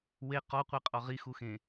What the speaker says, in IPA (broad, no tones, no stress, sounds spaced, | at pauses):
w e q ɔ qʷ e qʼ ɔ ʁ i x u x ẽ